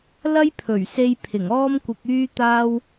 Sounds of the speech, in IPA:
l ɐ˥ j pʰ ɵ˨˩ ɥ s e˧ j pʰ ɪ˨˩ ŋ ɔː˥ m kʷ ɪ˧ k̚ yː˥ t̪ aː˥ w

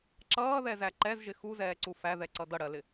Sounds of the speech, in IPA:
ǁ ʌː ð ɛ z æ ǃ ɛ z ʒ ɪ x u z ɛː ǀ u f æ ð ɛ ǀ ʌ d ʌ ɽ ɜ l ɪ

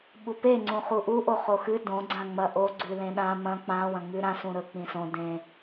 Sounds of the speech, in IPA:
ɓ u p e ŋ͡ǀ ũ χ u ʔ u ʔ o χ o x ɨ d õ ɡ͡ǀ ã ŋ͡m ɐ ʔ o ɡ͡ǀ ʉ l ẽ ɗ ã m ɐ̃ k͡p ã w ɐ̃ ŋ͡m ʉ ɾ ã s ũ ɾ ɵ k͡p ĩ s õ d ẽ

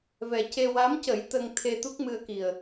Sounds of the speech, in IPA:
v ɛ˨˩ c e˧ w a˧˥ m c ə˨˩˦ j t̪ ə˧ ŋ t̪ʰ e˧ t̪ u˦˥ k̚ m ɨ˧ ə̯ k i˨˩ ə̯

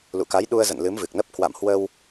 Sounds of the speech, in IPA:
l ṵ˧˨ k a˨˦ j ɗ u˧ ə̯ z ə̰˧˨ n l ɨ˨˦ m v ɨ˨˩ k̚ n ə˦˥ p̚ k w a̰˧˨ m h w ə˧ w

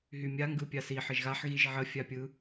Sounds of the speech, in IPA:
ɦ y mʲ a ŋ ɡ ɯ pʲ a s i ħ ə ʒ ɣ a ħ ɣ i ʒ ʕ ə fʲ a pʲ ɯ

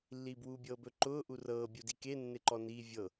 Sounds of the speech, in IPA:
lː iː b w uː bʲ ɤː b ɵ ǃ ʊː ʔ u r ɤː bʲ u d i k e nː e ǃ ɔ n iː vʲ ɤ

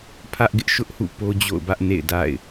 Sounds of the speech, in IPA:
pʰ ä˦ ʔ ɡ ɪ˦ ʔ ʃ ʊ˦ ʔ h ṵ˦˨ p o˦ d͡ʑ o̰˦˨ ʊ̯ b ä˦ ʔ n ḛ˦˨ ɪ̯ d a̰˦˨ ɪ̯

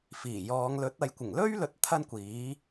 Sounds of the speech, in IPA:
f iː˨˩ j ɔː˨˧ ŋ l ɵ˨˥ t̚ ɐ˨ j kʷ ɪ˨˩ ŋ l ɵ˥ ɥ l ɵ˨˥ t̚ t̪ʰ ɐ˥ n kʷ iː˨˥

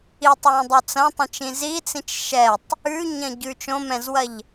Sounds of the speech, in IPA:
i tˤ w ɛ̃ dˤ o t͡s ɐ̃ tˤ ɛ̃ t͡ʃ ĩ z i t͡s ĩ t͡ʃ ʃ ɛ tˤ | ʉ ɲ ɐ̃ ɟ ʉ t͡ʃ õ m ɛ̃ z w ɐ ʎ

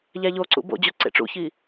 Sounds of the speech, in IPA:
ʎ æ ʎ o ǀ ṵ b o̰ d͡ʑ u ǀ ḛ ʈ͡ʂ ṵ ç i

